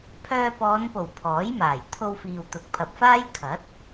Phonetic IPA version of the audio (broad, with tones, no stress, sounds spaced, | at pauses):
pʰ œː˧ p ɔː˨˧ n p o˨˩ w pʰ ɔː˨˥ j m aː˨˩ j t̪ʰ o˧ w f iː˨ w t̪ ʊ˨ k̚ pʰ ɐ˨ p̚ f aː˥ j kʰ ɐ˨˥ t̚